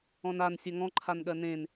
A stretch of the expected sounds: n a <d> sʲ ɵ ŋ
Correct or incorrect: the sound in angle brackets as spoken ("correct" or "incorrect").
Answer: incorrect